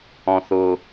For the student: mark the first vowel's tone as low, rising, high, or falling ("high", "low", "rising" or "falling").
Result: low